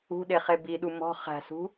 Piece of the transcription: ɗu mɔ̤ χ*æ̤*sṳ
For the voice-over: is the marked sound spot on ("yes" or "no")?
yes